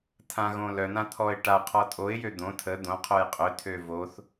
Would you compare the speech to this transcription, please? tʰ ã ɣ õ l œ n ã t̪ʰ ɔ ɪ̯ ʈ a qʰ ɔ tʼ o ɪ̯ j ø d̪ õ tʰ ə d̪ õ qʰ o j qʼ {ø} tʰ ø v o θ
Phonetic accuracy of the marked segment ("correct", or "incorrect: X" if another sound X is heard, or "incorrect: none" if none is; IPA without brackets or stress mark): correct